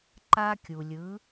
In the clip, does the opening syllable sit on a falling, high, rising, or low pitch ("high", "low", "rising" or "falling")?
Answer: high